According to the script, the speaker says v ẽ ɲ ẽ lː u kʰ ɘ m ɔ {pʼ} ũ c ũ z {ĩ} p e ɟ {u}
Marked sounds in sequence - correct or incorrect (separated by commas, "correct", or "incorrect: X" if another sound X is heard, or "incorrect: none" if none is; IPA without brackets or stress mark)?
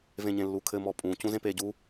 correct, incorrect: ẽ, correct